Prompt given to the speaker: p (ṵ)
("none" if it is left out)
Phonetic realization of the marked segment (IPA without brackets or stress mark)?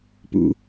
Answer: ṵ